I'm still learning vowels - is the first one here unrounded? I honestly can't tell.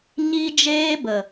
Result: yes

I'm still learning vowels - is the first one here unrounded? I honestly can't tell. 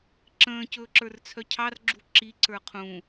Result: yes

